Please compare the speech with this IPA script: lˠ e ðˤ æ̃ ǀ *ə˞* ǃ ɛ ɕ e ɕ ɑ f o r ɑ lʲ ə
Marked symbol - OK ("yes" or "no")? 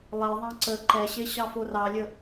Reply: no